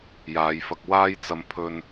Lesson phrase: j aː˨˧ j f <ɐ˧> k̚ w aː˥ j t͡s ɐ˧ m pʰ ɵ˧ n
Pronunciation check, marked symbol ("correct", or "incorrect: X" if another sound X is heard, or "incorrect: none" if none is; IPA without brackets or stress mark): correct